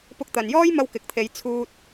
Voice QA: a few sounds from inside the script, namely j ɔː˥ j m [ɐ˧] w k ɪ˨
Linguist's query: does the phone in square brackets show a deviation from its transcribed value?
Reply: no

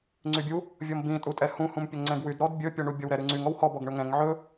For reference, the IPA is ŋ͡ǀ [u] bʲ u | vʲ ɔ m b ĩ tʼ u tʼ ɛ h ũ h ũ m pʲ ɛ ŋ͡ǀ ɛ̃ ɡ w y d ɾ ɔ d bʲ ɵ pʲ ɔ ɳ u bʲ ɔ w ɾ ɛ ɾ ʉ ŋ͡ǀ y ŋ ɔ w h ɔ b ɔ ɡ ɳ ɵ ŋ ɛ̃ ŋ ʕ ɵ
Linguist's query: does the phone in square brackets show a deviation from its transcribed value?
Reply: yes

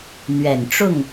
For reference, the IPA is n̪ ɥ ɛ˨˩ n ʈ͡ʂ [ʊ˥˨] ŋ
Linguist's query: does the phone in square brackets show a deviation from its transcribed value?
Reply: no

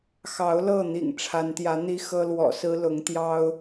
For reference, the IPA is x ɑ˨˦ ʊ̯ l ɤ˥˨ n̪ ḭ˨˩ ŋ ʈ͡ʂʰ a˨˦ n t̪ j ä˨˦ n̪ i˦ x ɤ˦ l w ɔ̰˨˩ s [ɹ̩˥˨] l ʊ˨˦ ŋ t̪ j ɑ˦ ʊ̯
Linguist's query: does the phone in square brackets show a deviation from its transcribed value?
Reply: yes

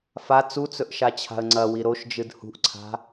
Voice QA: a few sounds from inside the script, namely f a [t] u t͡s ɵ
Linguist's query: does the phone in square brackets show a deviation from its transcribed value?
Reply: yes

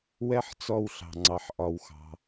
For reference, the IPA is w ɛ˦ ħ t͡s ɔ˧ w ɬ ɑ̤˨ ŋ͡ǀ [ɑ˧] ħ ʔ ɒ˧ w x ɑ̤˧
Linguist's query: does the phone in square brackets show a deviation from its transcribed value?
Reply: yes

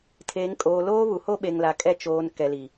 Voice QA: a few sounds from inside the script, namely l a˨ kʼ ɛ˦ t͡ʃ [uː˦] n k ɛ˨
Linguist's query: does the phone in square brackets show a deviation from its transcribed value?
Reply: yes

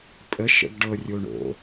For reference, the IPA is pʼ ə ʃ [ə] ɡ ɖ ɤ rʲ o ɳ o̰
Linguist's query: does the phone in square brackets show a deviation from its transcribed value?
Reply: yes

